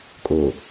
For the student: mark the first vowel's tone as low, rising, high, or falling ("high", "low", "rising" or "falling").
low